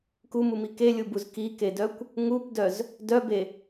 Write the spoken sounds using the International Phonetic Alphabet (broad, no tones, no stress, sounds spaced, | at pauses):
k u m u m i k e lʲ u b u z k i k e d œ kʷ | ŋ u p d œ z | d œ b e